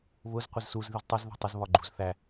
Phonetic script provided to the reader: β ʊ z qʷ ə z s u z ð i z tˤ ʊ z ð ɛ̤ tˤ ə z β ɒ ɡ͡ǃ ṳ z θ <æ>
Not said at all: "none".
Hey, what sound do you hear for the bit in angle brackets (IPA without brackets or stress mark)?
æ